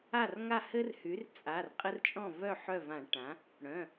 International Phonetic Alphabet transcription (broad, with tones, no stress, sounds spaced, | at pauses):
a˥˩ r ŋ a˥˩ h ɘ˦ r h y˩˥ r t͡sʼ a˩˧˩ r qʼ ɘ˦ r t͡ʃʼ ɔ̃˥˩ v œ˥˩ ħ œ˥˩ v ã˧˩˧ ʈ ã˩˥ | ɽ œ̃˩˧˩